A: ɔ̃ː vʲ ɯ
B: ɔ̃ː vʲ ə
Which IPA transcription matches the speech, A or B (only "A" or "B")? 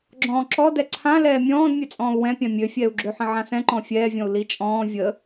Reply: B